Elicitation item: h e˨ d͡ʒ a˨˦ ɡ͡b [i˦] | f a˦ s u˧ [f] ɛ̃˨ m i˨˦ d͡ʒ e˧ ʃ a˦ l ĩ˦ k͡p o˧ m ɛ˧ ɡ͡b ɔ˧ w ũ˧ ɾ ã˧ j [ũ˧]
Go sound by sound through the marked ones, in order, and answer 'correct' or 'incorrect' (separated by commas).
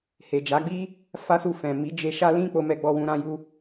correct, correct, incorrect